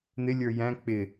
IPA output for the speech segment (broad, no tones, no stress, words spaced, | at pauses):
n̪ɪlʲə˞ jæ̃ k͡pɪ